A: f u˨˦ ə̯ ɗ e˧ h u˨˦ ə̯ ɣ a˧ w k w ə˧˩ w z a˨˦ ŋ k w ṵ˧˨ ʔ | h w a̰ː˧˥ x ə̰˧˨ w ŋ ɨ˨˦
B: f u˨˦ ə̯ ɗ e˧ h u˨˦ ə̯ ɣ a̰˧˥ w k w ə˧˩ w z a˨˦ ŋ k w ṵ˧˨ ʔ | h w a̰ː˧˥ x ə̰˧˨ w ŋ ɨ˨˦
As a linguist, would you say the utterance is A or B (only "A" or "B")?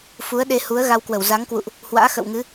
A